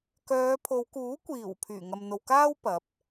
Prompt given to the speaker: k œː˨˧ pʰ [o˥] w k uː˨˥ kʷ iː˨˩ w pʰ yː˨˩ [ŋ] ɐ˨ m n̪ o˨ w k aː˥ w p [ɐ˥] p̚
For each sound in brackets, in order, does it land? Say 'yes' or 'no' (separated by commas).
no, yes, no